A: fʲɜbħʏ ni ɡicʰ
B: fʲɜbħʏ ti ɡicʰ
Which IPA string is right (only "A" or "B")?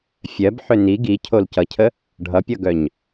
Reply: A